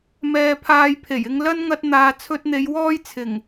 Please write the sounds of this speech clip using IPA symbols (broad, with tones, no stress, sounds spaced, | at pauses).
m ɛː˧ pʰ aː˧ j pʰ e˨˩ j ɪ˧ ŋ l ɐ˥ n ŋ ɐ˥ t̚ n̪ aː˧ t͡sʰ ɵ˧ t̚ n̪ e˨˧ j w ɔː˥ j t͡sʰ ɪ˨˩ ŋ